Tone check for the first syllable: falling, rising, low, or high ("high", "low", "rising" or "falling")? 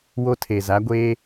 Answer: high